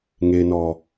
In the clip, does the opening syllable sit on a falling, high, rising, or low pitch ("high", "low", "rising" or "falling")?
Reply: low